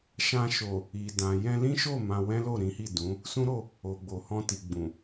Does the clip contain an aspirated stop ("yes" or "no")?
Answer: no